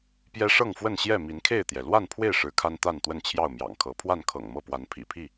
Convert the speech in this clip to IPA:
p j ɛ˦ ʂ ɤ˥˨ ŋ f w ə˥˨ n ɕ j ɛ˥˨ m i˨˦ n kʰ e˥˨ ɪ̯ t̪ j ɛ˩ l w a˥˨ n pʰ w e˥˨ ɪ̯ ʂ ɻ̩˨˦ kʰ a˦ n t̪ a˥˨ n t̪ w ə˥˨ n t͡ɕʰ j ɑ˥˨ ʊ̯ m j ɑ̰˨˩ ŋ kʰ ɤ˨˦ pʰ w a˥˨ n kʰ ɤ̰˨˩ ŋ m ɤ˥˨ p w a˨˦ n pʰ ḭ˨˩ pʰ i˥˨

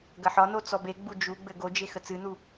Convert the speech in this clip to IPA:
ɡ ɐ ħ ɒ n o t͡s ɔ b e ɡ͡b u d͡ʒ u ɡ͡b ɘ ɡ o d͡ʒ e x ə t͡s ɨ n u

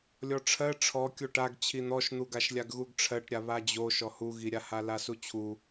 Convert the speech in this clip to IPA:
lʲ ɔ ʈ͡ʂʰ ɜ ʈ͡ʂʰ ɔ kʲ o ʈ a ɡ t͡ɕʰ i n̪ ɔ ʃ n̪ u ɡ a ʃ lʲ a ɡ ɣ u ɡ ʈ͡ʂʰ ɜ ʈ ɾʲ a β a d͡ʑ o ʃ ɔ h u ɣ i ɾʲ a h a l a s u t͡ɕʰ u

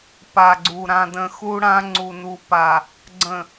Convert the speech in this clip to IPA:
p a˨ ɡ͡ǀ u˨ ɾ ã˨ d ə̃˨ x u˦ ɽ ã˦ ŋ͡ǀ u˨ n u˨ p a˨ | ɡ͡ǀ ə̃˨

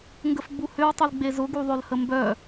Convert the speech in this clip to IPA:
ŋ ɡ ə f ɡ͡b u h ʏ w tˤ u l ɡ͡b e z ʊ ɡ u ðˤ ø l h ə m b œ

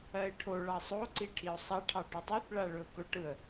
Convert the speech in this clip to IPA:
ɜ ɪ̯ ʈʰ o ɭ ɑ sˤ o ǀ i ʈʰ i ʊ̯ sˤ ɑ ʈʰ ɑ ʈ ɵ tˤ o θ ɭ a ɭ ɵ ʊ̯ k ɵ ʈ ɯ ə̯

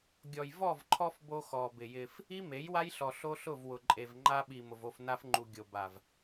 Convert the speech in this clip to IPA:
ɡʲ ɔ˨ j v ɔ˦˨ v ǃʰ ɔ˦ f b o˦ x ɔ˨ b ɪ˨ j ɪ˦ f | i˦ m e˨˦ j w a˦ j ɬ ɔ˨ ɬ o˦ ɬ ʊ˦˨ v w ʊ˨ ǃʼ e˨ v ŋ͡ǃ a˦ ɓ i˨ m ʊ˨ v o˦˨ f n a˦ f ŋ͡ǃ u˨ ɡʲ o˨ b a˨ v

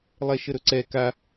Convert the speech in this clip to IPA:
lˠ ɛ ʃ ə ɾ ɵ ǀ ɛ k a

